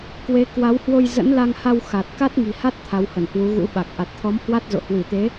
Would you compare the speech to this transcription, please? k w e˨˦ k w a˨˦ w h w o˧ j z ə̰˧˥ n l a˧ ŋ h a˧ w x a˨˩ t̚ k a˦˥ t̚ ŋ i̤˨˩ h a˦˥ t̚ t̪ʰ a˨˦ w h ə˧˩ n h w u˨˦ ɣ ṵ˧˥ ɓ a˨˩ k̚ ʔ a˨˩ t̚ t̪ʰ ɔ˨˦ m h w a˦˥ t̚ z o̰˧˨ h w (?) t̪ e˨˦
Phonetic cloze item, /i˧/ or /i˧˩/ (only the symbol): i˧˩